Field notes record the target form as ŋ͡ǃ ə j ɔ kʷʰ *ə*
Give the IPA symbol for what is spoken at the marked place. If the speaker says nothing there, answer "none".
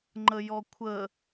ə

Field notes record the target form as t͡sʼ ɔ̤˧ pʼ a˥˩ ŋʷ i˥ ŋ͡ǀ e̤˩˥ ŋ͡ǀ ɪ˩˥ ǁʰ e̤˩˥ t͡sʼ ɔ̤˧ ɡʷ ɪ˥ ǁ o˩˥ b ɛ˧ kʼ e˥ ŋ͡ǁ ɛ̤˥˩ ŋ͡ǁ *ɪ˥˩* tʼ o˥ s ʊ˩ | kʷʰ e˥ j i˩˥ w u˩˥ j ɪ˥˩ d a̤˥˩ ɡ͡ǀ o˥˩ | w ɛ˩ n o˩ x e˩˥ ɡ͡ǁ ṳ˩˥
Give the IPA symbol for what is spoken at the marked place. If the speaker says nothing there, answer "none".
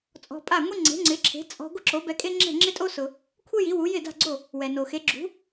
ɪ˥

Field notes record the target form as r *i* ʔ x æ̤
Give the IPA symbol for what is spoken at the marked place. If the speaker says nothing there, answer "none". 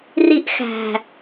i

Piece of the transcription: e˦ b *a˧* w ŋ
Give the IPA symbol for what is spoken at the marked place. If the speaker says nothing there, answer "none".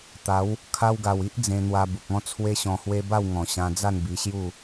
a˥˧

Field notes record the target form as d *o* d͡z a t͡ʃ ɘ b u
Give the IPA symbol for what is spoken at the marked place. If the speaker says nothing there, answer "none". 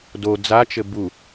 o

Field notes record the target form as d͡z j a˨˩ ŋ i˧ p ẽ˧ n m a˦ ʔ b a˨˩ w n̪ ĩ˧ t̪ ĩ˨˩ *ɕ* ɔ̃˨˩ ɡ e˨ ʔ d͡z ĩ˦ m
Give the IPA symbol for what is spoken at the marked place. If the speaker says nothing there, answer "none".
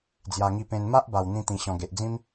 ɕ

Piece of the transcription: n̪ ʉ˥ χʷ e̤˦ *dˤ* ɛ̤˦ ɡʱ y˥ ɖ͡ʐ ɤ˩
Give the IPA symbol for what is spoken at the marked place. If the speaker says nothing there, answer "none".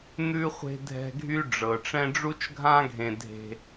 dʱ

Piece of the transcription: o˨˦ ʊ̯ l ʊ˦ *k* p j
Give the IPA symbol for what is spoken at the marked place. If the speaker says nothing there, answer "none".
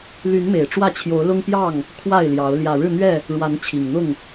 ŋ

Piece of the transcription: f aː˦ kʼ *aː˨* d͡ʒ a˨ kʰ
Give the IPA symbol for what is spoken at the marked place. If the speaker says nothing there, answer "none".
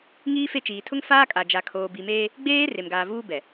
a˨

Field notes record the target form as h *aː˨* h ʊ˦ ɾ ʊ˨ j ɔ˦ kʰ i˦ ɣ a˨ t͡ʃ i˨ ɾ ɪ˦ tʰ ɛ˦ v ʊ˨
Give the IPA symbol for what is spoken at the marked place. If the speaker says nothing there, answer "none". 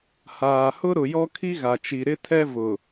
aː˨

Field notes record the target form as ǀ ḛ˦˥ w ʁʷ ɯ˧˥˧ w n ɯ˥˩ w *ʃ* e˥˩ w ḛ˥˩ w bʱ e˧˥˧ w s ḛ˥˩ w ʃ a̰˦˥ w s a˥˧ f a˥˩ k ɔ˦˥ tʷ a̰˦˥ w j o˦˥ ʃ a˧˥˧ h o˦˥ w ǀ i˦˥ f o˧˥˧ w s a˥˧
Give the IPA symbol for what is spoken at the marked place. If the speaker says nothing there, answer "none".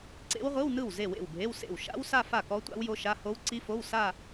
z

